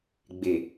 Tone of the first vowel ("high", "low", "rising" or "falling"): low